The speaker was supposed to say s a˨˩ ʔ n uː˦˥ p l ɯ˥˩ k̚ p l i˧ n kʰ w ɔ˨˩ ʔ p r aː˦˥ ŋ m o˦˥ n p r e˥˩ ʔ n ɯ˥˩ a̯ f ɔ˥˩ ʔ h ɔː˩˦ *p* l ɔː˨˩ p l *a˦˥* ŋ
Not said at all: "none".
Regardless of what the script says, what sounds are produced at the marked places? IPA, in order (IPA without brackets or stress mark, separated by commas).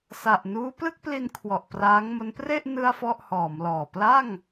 m, a˥˩